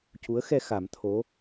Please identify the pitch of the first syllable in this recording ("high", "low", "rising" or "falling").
rising